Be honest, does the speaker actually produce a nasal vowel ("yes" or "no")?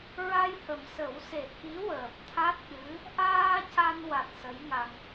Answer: no